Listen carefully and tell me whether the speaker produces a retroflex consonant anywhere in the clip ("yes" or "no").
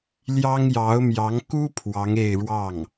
yes